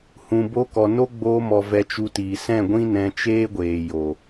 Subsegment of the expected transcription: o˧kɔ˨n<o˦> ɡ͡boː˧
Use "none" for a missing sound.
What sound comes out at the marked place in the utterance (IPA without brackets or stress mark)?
o˦